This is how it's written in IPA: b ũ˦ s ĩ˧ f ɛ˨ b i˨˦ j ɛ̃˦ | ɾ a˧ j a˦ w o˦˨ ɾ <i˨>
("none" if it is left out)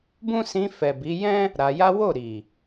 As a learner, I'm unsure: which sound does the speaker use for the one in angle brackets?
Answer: i˨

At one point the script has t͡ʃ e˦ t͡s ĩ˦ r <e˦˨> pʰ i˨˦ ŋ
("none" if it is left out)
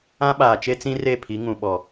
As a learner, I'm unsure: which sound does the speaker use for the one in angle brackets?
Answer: e˦˨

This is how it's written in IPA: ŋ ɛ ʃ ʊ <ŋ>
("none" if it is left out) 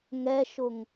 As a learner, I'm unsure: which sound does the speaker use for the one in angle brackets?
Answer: ŋ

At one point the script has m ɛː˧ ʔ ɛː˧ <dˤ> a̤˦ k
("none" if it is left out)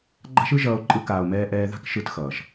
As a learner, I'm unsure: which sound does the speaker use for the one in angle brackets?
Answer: ð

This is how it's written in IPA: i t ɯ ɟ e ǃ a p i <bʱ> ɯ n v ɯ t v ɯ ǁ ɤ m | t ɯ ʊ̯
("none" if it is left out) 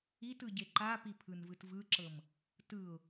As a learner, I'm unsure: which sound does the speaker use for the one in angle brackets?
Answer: pʰ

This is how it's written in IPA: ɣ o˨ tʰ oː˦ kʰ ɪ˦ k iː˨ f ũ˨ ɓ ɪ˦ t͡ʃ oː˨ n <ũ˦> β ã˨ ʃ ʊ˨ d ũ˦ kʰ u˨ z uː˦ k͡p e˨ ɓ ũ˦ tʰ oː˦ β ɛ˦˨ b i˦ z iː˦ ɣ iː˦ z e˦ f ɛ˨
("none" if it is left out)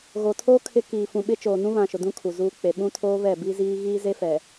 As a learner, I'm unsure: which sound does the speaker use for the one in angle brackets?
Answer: ũ˦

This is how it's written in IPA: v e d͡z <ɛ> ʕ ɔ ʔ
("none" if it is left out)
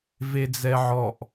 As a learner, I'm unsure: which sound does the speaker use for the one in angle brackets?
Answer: ɛ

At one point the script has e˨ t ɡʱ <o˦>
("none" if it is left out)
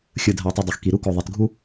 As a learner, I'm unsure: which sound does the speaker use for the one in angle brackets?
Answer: u˦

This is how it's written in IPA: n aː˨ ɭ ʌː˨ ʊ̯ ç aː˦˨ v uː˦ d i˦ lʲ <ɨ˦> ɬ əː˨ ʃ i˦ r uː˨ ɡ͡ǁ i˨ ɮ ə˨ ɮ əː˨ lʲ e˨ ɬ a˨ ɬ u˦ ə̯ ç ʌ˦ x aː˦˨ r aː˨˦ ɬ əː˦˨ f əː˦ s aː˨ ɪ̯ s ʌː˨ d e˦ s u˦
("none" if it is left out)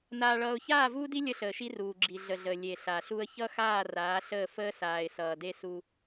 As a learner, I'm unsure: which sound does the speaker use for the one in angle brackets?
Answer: ə˦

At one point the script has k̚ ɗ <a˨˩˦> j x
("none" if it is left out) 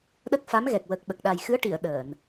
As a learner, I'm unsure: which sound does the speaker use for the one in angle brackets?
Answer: a˨˩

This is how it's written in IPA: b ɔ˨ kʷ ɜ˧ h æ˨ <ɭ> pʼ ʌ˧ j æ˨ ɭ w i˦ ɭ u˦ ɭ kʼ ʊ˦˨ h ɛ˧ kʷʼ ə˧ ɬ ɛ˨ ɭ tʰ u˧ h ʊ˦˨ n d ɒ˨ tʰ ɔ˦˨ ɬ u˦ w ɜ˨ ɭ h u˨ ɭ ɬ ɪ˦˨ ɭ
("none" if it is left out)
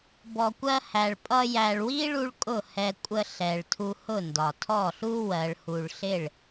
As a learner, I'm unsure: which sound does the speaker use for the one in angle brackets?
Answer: ɭ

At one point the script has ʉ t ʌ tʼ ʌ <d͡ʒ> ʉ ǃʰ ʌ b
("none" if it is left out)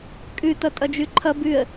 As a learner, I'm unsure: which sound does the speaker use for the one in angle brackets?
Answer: d͡ʒ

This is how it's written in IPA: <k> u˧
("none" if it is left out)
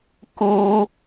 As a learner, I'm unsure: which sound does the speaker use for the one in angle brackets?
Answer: k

